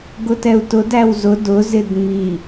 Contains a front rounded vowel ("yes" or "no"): no